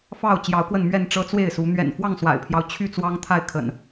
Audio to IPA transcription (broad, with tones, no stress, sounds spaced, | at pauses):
f ɑ˥˨ ʊ̯ t͡ɕ j ɑ˨˦ ʊ̯ k w ə˥˨ n m ɥ ɛ˥˨ n ʈ͡ʂ ɤ˦ t͡s w e˥˨ ɪ̯ s u˨˦ n̪ ɥ ɛ̰˨˩ n f w ɑ˥˨ ŋ s w a̰˨˩ ɪ̯ pʰ j ɑ˦ ʊ̯ t͡ɕʰ y˥˨ t͡s w ɑ˦ ŋ t̪ʰ a˥˨ ɪ̯ kʰ ə̰˨˩ n